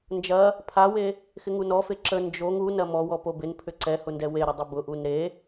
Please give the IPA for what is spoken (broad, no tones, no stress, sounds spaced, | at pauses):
n d͡ʒ ɐ | pʰ a w e | x ɪ ŋ u n ɔ f e ǁ ə n d͡ʒ o ŋ u n ɐ m ɔ w ɔ p o b ɪ n pʰ ʏ ǀ ɛ h ʊ n d ɛ w e ɾ ʊ dˤ ə b ʊ ʔ u n ɾ e